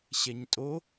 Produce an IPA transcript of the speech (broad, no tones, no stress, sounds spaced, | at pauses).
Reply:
ɕ ɛ ɲ tʼ o